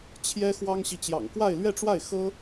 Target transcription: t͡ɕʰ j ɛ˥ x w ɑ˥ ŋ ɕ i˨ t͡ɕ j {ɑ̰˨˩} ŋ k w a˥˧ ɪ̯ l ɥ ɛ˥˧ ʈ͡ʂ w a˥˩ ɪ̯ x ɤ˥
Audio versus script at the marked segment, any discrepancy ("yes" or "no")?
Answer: no